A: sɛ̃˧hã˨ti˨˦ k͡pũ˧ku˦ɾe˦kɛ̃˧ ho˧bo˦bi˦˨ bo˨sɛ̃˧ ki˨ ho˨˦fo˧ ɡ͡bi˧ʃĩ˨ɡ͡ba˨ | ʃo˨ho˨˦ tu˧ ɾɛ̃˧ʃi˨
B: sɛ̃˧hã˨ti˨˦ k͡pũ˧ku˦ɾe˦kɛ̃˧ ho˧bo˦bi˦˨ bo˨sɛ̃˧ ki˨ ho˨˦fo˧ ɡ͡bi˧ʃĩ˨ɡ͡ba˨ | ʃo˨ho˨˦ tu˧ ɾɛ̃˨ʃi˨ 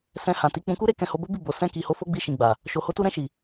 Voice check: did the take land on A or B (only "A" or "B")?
A